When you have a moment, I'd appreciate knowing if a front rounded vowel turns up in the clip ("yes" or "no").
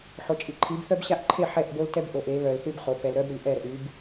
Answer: yes